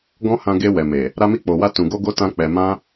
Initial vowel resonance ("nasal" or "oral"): nasal